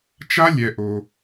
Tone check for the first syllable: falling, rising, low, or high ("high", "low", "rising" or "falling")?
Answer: high